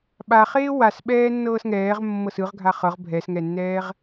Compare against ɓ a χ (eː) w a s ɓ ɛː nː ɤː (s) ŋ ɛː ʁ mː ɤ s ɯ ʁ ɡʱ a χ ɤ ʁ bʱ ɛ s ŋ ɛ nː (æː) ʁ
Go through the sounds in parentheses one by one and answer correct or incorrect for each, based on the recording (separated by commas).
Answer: correct, correct, incorrect